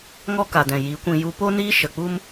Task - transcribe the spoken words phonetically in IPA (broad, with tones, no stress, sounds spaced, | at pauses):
ŋ ɔ˦ k a˨ d ɛ̃˨ j i˨˦ kʷ ĩ˧ j u˧ p o˦ n iː˦ ʃ ə˨ k͡p u˦ m